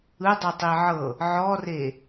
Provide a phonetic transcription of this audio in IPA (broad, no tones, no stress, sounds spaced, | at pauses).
ɯ dˤ ɯ tˤ i ʕ ɤ | ʕ ɔ r e